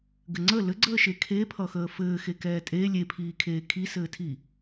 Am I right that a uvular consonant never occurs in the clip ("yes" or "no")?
yes